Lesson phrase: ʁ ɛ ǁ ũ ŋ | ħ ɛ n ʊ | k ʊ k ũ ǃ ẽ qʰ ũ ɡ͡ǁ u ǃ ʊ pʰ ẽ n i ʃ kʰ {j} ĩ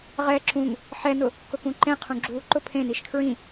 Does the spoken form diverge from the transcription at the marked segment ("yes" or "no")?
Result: yes